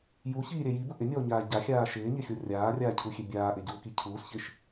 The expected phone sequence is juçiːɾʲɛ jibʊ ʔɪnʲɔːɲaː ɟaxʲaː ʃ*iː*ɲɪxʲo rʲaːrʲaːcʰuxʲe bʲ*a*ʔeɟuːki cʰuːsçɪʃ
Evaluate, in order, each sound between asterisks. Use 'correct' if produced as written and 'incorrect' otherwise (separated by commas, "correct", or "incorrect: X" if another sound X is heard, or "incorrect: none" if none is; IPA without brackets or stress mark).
incorrect: ɪː, incorrect: aː